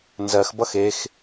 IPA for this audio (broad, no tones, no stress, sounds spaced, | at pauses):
n z ɜ x b ʌ x e x